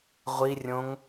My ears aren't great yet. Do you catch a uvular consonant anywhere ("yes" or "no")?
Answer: yes